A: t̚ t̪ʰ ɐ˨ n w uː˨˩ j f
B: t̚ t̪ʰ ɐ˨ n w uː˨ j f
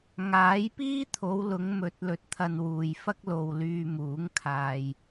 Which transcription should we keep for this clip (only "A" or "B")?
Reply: B